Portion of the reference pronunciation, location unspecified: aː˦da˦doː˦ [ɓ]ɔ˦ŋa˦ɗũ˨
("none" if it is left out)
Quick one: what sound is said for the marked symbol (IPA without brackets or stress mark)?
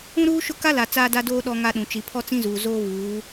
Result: ɗ